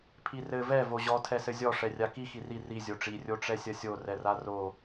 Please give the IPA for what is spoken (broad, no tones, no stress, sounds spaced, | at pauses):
pʰ i r ɘ v ɛ v o ʑ ɔ tʰ ɛ s ɘ zʲ ɔ ʂ ɛ rʲ a k i x i r i r i zʲ o ʈ͡ʂ i rʲ o ʈ͡ʂ ɛ sʲ ɐ sʲ o r ɛ r a r o